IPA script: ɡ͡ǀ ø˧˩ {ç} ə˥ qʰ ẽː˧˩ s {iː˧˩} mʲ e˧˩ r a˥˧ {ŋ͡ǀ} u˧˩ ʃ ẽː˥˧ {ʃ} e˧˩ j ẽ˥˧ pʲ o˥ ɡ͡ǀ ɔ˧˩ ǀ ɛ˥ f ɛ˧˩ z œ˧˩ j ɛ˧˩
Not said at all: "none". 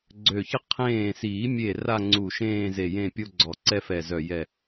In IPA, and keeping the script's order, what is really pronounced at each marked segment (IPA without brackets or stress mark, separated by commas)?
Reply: ç, iː˨˩˦, ŋ͡ǀ, z